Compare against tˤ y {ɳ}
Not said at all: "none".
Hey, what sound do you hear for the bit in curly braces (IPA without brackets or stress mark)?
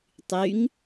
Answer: ŋ